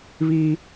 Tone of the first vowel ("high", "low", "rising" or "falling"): high